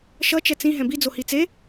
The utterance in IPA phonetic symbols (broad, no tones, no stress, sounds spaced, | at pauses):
ʃ ʌ t͡ʃ ɛ t͡s ĩ ɦ ɛ̃ b i d͡z o h i t͡s e